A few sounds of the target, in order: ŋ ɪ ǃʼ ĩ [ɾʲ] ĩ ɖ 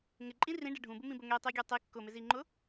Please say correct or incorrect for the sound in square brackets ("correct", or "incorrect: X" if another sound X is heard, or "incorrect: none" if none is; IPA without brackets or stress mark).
incorrect: r